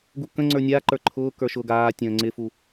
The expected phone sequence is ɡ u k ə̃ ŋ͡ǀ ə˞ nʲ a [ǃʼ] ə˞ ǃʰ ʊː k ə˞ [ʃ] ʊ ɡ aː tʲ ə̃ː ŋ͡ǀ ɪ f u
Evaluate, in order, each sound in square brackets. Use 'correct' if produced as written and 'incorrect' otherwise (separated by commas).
incorrect, correct